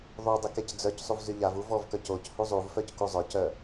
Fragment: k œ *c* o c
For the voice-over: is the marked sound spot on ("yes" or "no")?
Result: yes